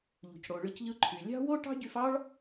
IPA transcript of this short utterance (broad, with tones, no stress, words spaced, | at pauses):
ʎṳ˨cɽo˨ɭɯ˧cʎɯ˧ ǃʰy˨lʲɑ̤˦ wo˦ʈɑ̤˦ɟy˧fɑ˦ɭ